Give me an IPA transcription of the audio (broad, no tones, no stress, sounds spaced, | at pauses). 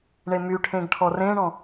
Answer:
ɳ e m y ʈʰ ẽ ɡ ʈʰ ɔ r ẽ ɳ ɔ̃